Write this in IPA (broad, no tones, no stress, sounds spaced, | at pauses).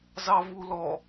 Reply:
z ɑ v u l ɔ